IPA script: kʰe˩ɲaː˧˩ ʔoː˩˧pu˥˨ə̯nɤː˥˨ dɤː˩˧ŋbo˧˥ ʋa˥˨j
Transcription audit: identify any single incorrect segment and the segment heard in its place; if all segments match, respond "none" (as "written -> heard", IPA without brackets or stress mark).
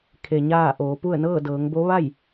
none